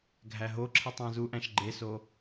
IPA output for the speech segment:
ɡʱæɦoǁʰitˤ æ̃zuʔæ̃ʃ ɡ͡ǃeso

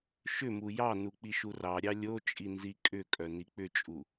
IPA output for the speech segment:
ʃʏmu jɑnu k͡piʃurɑɾʲɑ lʲot͡ʃʼi nzikʼʏkʼœ nik͡pʏt͡ʃʼu

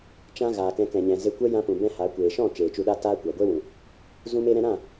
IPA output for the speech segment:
t͡ʃã˦ ɣaː˧kɛ̃˦kɛ̃˧ɲɛ̃˧ ze˧kʷɛ˦jã˧pũ˨ bɛ̃˦ha˨˦ kʷeː˨ʃɔ̃˦˨ t͡ʃeː˨t͡ʃu˧ɗa˦taː˦ kʷa˨ɡʷe˦wũ˨ | zũ˦me˦ ɾɛ̃˧ɾã˦˨

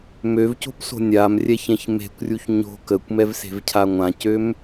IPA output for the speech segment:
møvco̤pso̤ nʲamrʲɛçɛ̃ç me̤kʷrʲuç ɲo̤ kəkʷmɛvse̤vcʰa ŋʷãcøm

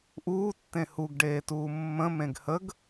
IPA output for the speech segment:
ʔuːtːẽ huɡɖeːtuː mːə̃mẽɡ həɡ

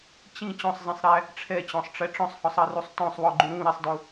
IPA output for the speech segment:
t͡ɕĩ t͡ɕɔ̃sˤzĩsˤɾæ | ʈ͡ʂʰɛt͡ɕɔ̃sˤʈ͡ʂɛ ʈ͡ʂɔ̃sˤhɔsˤɜrusˤ tɔ̃sˤwɔɡ͡ǃu ɾũɾɛsˤdʊ

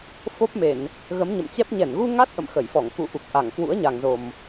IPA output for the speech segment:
fo˦˥p̚me˧˩˨n | ɣə˨˦mɲə̰˧˨mt͡ɕɛ˦˥p̚ ɲɛ˧˩nɣu˧ ŋa˦˥t̚ʔə̰˧˨mxə˧˩jfɔ˧˩ŋ kṵ˧˨ ʔu˨˩k̚ʔa˧˩ŋ kwṵ˧˥ə̯ɲa˨˩ŋzo˨˩m

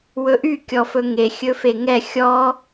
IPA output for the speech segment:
wɵʔy kʲɔfɵŋe xʲɵfeŋɛ xʲɔ

